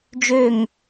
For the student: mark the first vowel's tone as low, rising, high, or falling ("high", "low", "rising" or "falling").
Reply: falling